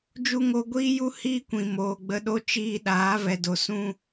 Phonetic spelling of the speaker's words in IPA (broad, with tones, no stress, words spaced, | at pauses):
d͡ʒu˧ŋo˧ ɡʷiː˦ju˦ hiː˦kʷĩ˨ moː˨ɡ͡bə˧ɗo˦ t͡ʃiː˧ɗaː˨˦ vɛ˨ do˨sũ˧